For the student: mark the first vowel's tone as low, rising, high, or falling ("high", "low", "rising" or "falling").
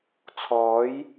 rising